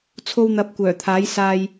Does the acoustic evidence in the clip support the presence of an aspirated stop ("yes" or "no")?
yes